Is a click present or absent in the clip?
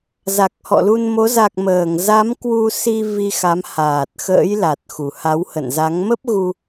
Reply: absent